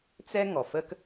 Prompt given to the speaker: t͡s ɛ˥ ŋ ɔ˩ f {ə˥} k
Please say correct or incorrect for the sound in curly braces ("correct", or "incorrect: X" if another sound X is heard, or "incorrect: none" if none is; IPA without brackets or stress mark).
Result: correct